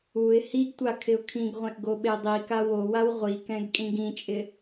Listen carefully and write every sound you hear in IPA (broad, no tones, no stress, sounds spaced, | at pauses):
u ɪ̯ h i ɡ tʷ a kʰ ɪ ʊ̯ kʰ ĩ ɡ ʁʷ ẽ ʔ ɡ o ɓ e dˤ i k a w o w a w ʁʷ i k ɛ̃ ɡ kʼ ĩ ɡ ĩ t͡ʃʼ ɪ